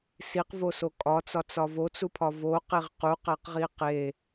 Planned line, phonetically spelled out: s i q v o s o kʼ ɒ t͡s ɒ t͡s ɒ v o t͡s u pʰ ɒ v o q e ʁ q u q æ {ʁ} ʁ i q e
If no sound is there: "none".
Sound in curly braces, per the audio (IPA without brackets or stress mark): q